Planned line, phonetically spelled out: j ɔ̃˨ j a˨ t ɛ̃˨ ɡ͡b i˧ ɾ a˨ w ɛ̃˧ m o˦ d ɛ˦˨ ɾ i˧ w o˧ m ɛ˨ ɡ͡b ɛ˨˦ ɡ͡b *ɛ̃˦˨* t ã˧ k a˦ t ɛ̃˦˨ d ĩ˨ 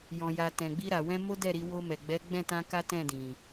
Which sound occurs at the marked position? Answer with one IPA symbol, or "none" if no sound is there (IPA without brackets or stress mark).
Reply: ɛ̃˦˨